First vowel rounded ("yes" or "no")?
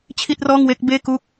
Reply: no